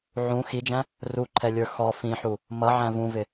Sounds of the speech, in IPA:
ʕũ xid͡ʒæ̃ | ruǃʰɛlʲə˞ xɔ fĩħu | mʌʕæ̃ vũvɪ

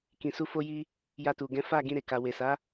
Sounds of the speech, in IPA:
kĩ˨su˧ fo˧ji˧ | ja˧tu˨ ɡɛ̃˨˦fa˦˨ ɡĩ˧ɾe˨ka˨ we˨sa˨˦

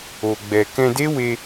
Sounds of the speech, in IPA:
o˧ɡ͡bɛ˧ kɛ̃˧de˦we˧

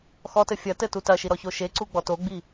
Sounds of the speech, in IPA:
xɔtɘ fʲɐ tɘtutɐʃi ɾɔçoʃeǀu ɡ͡bɔtoɡ͡bi

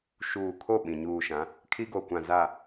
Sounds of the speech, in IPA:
ʃuː˨kʰo˦˨ ɓĩ˨ ɲuː˨ʃã˨˦ | kʰi˦ɡo˨kʷã˨ za˨

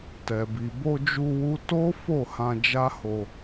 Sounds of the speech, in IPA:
tɛ˨bi˨ bo˧d͡ʒu˧ wu˦ to˦fo˦˨ hã˧d͡ʒa˦ho˧

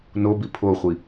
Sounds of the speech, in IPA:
nobi pʰoχʷi

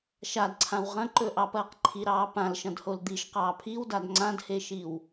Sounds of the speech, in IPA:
ʃadǀʰãw ʁɐ̃ǃɵʔɑpɐːq ǃʰiɾɑː pãlʃɐ̃dhol d̪iʃqɑː pʰiwdad ŋ͡ǀãdheʃiw

